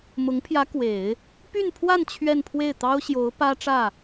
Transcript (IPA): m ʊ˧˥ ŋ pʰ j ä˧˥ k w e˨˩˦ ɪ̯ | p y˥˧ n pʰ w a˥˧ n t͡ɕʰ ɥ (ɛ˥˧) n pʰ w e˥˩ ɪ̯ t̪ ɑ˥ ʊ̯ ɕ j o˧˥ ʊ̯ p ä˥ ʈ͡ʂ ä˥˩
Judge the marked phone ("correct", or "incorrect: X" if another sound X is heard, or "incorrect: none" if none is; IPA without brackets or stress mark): correct